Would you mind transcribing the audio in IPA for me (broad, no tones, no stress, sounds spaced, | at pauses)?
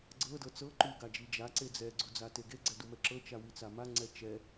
ɡ͡ǀ ɤ d ɤ t͡s ɤ ǃ u ɡ a d͡ʒ i d͡ʒ a ǀ e d͡z ɛ ɡ͡ǀ u d͡z a t e ɡ e ɡ͡ǀ ɛ d u m ɛ ǁ ɤ t͡ʃ a w i t͡s a m a ŋ͡ǀ ɛ t͡ʃ ɛ